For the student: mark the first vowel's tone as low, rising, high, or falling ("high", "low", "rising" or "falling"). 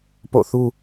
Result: falling